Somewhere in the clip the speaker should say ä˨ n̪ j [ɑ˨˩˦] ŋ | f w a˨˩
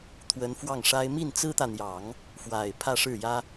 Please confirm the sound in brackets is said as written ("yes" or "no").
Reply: yes